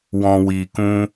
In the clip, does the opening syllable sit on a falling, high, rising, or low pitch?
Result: low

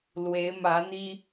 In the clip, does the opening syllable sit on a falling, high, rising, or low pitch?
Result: rising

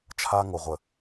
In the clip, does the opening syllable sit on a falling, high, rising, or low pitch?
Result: high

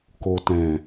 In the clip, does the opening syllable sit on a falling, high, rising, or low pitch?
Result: low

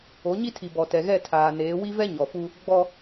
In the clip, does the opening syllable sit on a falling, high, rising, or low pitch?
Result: rising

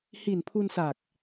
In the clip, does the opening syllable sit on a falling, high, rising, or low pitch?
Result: low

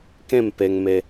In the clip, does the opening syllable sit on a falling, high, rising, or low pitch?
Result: falling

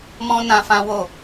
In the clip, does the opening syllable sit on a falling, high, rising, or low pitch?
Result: high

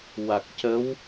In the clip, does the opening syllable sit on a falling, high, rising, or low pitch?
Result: low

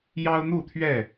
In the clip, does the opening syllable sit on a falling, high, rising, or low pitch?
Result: high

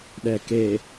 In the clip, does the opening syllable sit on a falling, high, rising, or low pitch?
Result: low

